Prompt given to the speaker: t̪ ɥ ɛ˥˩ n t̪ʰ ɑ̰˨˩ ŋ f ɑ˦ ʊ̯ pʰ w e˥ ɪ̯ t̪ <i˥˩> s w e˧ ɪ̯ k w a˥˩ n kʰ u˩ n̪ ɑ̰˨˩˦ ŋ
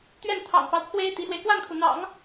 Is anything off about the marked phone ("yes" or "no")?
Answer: yes